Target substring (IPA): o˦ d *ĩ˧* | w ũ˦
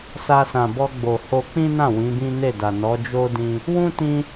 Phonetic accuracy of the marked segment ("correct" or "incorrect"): correct